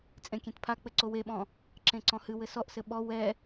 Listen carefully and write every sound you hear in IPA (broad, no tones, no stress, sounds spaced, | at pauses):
t͡sʼ ẽ kʲ ẽ t pʰ a k͡p ɘ ǀ o w e ɓ ɔ̃ | ǁ ẽ ǀ ɔ̃ h ɨ w ɘ s ɔ ʔ s ɘ ɓ ɔ w ɛ